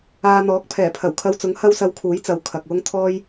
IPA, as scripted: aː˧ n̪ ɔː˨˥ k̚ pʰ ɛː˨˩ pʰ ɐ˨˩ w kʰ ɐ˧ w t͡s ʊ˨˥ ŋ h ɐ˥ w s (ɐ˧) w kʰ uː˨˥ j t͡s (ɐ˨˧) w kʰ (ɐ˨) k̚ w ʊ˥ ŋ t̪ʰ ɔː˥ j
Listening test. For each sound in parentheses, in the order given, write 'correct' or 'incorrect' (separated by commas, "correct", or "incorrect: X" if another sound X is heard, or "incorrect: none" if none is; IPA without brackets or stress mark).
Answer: correct, correct, correct